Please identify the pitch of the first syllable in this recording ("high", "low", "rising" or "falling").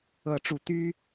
rising